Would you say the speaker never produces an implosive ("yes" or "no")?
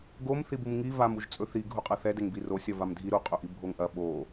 no